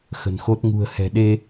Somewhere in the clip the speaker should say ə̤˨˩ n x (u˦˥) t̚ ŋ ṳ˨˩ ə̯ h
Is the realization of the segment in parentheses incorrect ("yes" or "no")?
yes